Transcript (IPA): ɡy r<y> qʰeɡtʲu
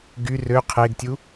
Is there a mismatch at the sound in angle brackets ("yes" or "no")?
yes